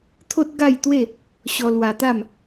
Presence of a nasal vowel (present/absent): absent